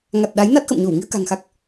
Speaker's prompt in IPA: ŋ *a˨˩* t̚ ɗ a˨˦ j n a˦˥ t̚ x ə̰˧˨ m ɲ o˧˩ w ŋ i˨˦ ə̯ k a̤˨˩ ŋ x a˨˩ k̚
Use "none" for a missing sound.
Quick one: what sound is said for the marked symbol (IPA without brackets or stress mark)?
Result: a˨˩